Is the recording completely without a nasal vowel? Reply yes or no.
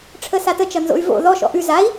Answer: yes